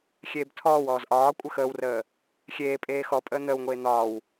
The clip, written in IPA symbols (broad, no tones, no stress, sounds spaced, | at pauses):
xʲ eː b tʰ ɔː w ɔː z ʔ ɒː kʷʼ ə x əː w r əː | xʲ eː pʼ eː x ɔ pʼ əː n̪ əː w ŋʷ eː n̪ ɒː w